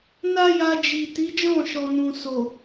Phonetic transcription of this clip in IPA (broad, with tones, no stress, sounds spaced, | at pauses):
n a˦ j a˧ d͡ʒ i˨ t i˨˦ d͡ʒ ɔ̃˦˨ ʃ ɔ˨ n ũ˨ s o˨